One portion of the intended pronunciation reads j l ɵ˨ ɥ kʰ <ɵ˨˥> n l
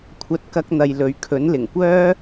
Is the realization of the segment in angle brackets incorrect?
no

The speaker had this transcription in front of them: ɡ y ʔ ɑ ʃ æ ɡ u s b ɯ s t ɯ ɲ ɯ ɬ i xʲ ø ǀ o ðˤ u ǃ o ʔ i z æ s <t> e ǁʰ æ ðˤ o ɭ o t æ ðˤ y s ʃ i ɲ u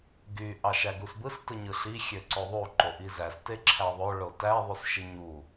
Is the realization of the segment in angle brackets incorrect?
no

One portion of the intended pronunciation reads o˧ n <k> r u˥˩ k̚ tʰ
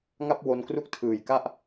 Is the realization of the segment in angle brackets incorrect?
no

